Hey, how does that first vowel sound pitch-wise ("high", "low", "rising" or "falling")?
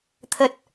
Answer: low